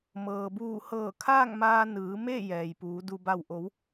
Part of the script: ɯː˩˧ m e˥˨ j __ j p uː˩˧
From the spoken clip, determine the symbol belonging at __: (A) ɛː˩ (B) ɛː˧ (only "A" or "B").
A